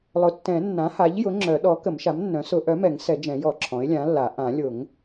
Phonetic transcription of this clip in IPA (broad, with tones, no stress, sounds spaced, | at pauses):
lˠ ʊ˩˥ tː ɛ̃˨˩˦ nː ã˩˥ h a˩˥ ʎ j ʊ˩˥ ŋ͡ǁ œ˨˩˦ ɗ ɔ˩˥ k ə˨˩˦ m ʃ a˩˥ m nː œ̃˩˥ s ʊ˨˩˦ ʔ œ˩˥ m ɛ˨˩˦ ŋ s ɛ˨˩˦ d͡ʒ ɛ̃˨˩˦ j ɔ˨˩˦ ǁʰ ɔ̃˩˥ ɪ̯ lʲ ã˩˥ lː a˨˩˦ ʔ ã˨˩˦ lʲ ʊ˨˩˦ ŋ